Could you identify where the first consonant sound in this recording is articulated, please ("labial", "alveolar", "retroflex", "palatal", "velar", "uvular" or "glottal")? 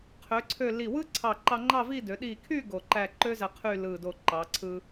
uvular